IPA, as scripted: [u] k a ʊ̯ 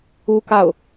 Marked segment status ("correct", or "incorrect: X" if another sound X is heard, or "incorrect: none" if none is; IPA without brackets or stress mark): correct